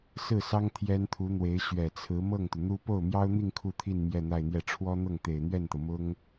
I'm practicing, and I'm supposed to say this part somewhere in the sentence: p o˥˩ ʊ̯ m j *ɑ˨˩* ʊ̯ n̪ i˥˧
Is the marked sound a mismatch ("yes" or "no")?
yes